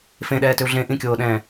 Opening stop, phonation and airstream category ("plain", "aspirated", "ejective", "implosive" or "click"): implosive